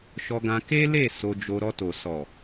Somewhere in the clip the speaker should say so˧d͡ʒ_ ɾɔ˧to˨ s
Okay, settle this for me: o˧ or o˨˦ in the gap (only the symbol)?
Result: o˧